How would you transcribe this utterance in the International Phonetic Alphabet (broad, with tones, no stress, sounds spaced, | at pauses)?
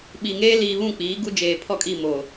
ɓ i˨ ŋ eː˦ l iː˨ β ũ˦˨ k͡p iː˨˦ ɡ u˦ d͡ʒ eː˨ pʰ ɔ˦˨ kʼ i˦˨ m o˨